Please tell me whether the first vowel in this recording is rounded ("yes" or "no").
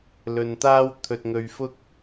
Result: yes